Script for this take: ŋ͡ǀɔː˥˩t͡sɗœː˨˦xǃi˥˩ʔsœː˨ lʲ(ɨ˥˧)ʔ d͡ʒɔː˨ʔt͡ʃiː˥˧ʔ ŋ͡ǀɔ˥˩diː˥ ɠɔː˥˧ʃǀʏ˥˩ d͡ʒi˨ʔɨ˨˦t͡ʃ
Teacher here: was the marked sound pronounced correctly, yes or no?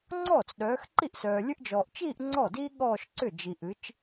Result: no